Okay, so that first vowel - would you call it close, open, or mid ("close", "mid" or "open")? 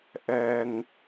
mid